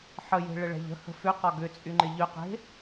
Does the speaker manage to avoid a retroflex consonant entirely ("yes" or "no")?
no